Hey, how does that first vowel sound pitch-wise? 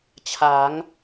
rising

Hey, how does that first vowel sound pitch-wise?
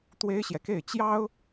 high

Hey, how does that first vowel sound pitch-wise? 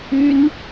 high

